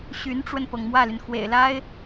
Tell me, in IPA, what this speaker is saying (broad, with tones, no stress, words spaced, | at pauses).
ɕy˧˥nʈ͡ʂwə˧npɤ˩ŋ mwä˥˩ly˩nxwḛ˨˩ɪ̯la˥ɪ̯